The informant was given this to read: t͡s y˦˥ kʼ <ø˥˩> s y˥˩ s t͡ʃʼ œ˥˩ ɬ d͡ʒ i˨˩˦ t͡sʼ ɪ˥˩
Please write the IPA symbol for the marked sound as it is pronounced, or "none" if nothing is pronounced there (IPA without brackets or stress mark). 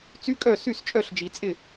œ˥˩